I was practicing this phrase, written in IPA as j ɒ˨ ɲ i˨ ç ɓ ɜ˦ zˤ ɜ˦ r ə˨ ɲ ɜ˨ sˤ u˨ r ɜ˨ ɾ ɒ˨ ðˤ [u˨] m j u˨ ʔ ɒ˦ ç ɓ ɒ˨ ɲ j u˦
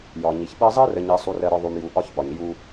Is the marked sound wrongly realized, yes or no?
no